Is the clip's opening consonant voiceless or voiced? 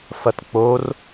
voiceless